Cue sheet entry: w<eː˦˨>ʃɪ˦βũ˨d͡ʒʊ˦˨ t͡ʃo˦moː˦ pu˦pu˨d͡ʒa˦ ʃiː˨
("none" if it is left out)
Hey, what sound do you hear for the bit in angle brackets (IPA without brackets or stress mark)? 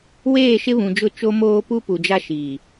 eː˦˨